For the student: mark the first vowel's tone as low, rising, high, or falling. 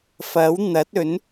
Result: rising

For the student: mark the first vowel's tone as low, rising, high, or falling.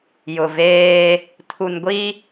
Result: low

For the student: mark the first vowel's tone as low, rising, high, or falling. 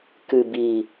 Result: low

